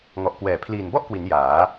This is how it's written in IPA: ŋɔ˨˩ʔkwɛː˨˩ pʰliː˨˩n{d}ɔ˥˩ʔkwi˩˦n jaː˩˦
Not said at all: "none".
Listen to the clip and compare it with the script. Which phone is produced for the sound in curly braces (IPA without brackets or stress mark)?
b